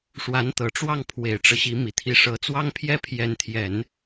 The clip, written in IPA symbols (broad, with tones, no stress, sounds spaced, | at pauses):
ʂ w a˧˥ n t̪ ɤ˨˩ ʈ͡ʂ w ɑ˥˩ ŋ pʰ w e˨˩ ɪ̯ ʈ͡ʂ ɤ˦ ɕ i˧˥ m i˨˩ t̪ʰ i˧˥ ʂ ɤ˧˥ t͡s w ɑ˥ ŋ pʰ j ɛ˥ pʰ j ɛ˧˥ n t̪ʰ j ɛ˨˩˦ n